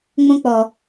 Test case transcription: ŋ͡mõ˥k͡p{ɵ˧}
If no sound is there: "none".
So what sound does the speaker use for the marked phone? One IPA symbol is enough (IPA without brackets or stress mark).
ɔ˧